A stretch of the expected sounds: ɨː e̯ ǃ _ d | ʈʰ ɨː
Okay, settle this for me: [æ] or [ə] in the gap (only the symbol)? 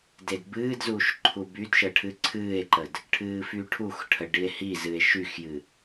ə